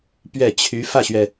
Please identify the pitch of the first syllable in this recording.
falling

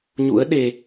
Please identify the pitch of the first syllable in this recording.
rising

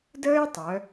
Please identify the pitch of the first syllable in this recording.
high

